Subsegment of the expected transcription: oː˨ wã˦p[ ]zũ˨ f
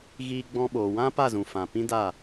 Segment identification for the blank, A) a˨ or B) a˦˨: B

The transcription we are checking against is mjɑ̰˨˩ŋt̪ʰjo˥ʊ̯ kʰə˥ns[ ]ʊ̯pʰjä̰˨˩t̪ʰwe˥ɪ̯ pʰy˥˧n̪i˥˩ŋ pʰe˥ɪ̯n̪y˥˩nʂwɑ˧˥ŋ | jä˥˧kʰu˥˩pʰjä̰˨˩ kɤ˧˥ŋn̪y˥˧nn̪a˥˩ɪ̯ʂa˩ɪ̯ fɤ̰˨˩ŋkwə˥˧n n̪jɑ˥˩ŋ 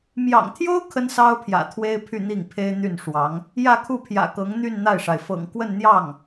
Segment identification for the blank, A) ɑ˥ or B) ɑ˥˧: A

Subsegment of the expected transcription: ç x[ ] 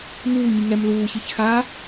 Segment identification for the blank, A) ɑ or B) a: B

